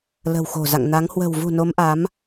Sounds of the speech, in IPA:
l ə̤˨˩ w x o̤˨˩ z a̰˧˨ ŋ n a˨˦ ŋ h w ə̤˨˩ w v ṳ˨˩ n o˨˦ m ʔ a˨˦ m

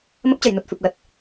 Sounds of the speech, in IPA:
m ə˦˥ p̚ t͡ɕ ə˨˩ j n u˨˩ t̚ f ɨ˨˩ p̚ l ə˨˩ t̚

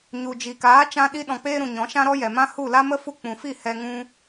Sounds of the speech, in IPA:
ɲ u˨ d͡ʒ i˨ k aː˨˦ t͡ʃ ã˧ ɗ i˧ ɗ ɔ̃˨ k͡p eː˧ ɾ ũ˨ ɲ ɔ̃˨˦ ʃ ã˦ ɾ ɔ˦ j ɛ˨ m ã˦ h u˦˨ l a˦ m ə˦ f u˧ k͡p ũ˨ f i˦˨ h ɛ˧ ŋ ũ˦

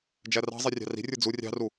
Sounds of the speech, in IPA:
d͡ʒ æ r ɑ̤ zˤ i rʲ ɑ̤ r i̤ rʲ ə˞ d͡z u rʲ ɑ̤ r u

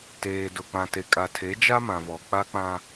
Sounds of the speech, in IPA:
t eː˨ d ʊ˨ k͡p ã˨ t e˨ kʼ a˨ tʰ e˨˦ d͡ʒ a˦ m ã˨ v ɔ˨ k͡p a˦ k͡p ã˦

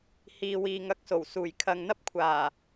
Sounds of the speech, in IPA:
h iː˨ w iː˨ ŋ ɐ˧ k̚ s o˨˩ w s uː˨˩ j kʰ ɐ˨ ŋ n̪ ɐ˥ p̚ kʷʰ aː˨˩

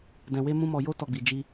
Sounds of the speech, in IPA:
d ɛ̃˧ w e˦ m ũ˦ m ɔ˧ j o˦ t ɔ˧ ɡ͡b i˨ d͡ʒ i˧

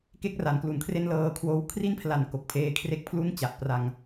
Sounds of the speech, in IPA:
k e˥˩ k̚ r a˩˦ n k l u˨˩ n kʰ r e˥˩ n l ɤː˧ kʰ w oː˦˥ w kʰ r i˥˩ n pʰ l a˨˩ n k o˨˩ k̚ pʰ eː˧ kʰ r e˥˩ k̚ pʰ l u˥˩ n t͡ɕ a˨˩ ʔ p r a˧ ŋ

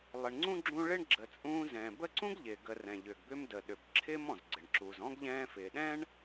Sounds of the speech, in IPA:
lˠ ɪ˩ ɳ ŋ͡ǀ ũ˥ ɡ͡ǁ ũ˦ ɭ ɪ˥ ɳ ɡ͡ǁ ə˨ t͡sʼ ũː˦ z ɛ̃ː˩ b ə˦ ǀ ũ˥ ɡ ʎ ɪː˩ ɡ ə˨ r ɛ̃˩ ʎ ʏ˩ ɡ b ʏ˦ m d ə˩ ɗ ʏ˩ b ǁʰ ɪː˦ m ɔ̃˩ z ɡ͡ǀ ɪ˩ ɳ ǁ u˨ z ɔ̃˥ ɡ ʎ ɛ̃ː˦ f ɪː˨ ɗ ɛ̃˥ ɳ

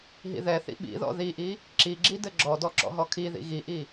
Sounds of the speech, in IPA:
ɦ ḭ ð ɛ θ ḭ ɓ ḭ ð ɔ̰ ð i ʔ i | ǁ i ɡ͡ǁ i d ɘ ɡ͡ǁ ɔ d ɔ ǁ ɔ̰ ɦ ɔ kʰ i ð ḭ ɣ i ʔ i

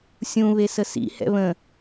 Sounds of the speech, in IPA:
sʲ ũ β e s ə s ḭ h ɛ̰ β ə̃

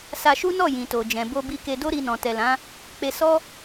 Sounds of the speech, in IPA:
s a˧ ʃ u˦ n ɔ˦˨ j ĩ˨ t o˨ d͡ʒ ɛ̃˨ b o˧ b i˧ k e˧ d o˦ ɾ i˧ n ɔ̃˨ t ɛ˨ l ã˨˦ | k͡p e˧ s ɔ˦

